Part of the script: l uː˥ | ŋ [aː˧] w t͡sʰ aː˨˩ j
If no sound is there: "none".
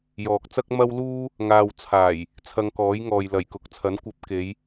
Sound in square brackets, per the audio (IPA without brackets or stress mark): aː˨